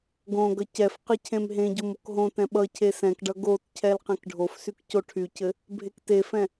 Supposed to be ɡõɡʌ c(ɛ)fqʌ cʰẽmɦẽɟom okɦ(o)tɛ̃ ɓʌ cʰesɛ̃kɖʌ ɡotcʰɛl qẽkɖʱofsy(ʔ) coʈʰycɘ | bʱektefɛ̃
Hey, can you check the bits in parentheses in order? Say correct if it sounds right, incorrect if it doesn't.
correct, incorrect: õ, incorrect: k

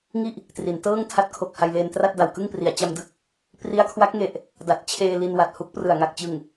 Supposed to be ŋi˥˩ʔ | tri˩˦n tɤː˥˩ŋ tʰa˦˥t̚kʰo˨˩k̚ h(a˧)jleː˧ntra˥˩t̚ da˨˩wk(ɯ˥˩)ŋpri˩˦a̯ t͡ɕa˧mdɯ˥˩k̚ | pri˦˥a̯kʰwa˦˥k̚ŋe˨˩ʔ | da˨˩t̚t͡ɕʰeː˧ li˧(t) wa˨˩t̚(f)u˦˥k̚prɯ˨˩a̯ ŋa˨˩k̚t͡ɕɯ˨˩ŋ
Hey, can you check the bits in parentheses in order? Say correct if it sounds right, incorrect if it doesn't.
correct, correct, incorrect: n, incorrect: h

